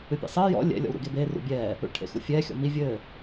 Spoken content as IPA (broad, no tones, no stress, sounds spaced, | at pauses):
ɨ pʲ ɛ̰ sˤ ɘː j ɔ̰ lʲ ɛ̰ lʲ ɔ̰ w ɾ ṵ ɡ e b eː r ṵ bʲ ɛː | ṵ ɭ ʈʰ ḛ x ṵ fʲ ɛː xʲ ɔ̰ m i vʲ ɘː